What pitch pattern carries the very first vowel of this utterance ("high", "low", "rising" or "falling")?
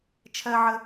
high